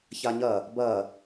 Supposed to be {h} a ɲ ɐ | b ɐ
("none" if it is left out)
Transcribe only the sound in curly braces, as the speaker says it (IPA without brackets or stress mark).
ç